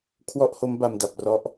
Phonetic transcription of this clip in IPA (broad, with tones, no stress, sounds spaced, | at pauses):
kʰ w ɔ˥˩ ʔ h o˦˥ m b a˧ m d a˨˩ p̚ r ɔ˦˥ ʔ